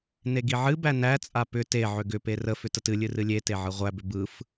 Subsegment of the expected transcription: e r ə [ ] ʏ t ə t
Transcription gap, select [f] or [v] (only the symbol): f